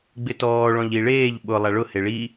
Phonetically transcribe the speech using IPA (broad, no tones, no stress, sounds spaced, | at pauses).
ɡ͡b ɪ t ɔː ɭ ɔ̃ ʎ i ɭ eː ʎ ɓ ʊ lˠ a ɭ ʊ h e ɭ i